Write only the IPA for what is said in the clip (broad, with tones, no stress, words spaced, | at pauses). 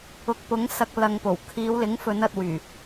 ʊ˨k̚pʊ˨˥ŋ sɐ˧k̚ lɐ˨ŋpo˨˩w kʰiː˨˧wlɪ˨˥ŋfɵ˨˧n ɐ˧t̚wyː˨˩